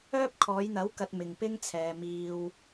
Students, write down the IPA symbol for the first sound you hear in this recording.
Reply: œː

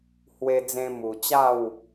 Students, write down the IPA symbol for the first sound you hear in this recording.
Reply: h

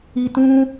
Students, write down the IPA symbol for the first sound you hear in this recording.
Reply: i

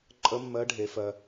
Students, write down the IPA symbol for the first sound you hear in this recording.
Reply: ǃʼ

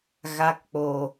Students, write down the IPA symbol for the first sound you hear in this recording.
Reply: ɣ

